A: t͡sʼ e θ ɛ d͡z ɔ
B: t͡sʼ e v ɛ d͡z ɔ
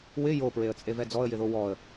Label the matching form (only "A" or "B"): B